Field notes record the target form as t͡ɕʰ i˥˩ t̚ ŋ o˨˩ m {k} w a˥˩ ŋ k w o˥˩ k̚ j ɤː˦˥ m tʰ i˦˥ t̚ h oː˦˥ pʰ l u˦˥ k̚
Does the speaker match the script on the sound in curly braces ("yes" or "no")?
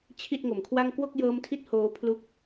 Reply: no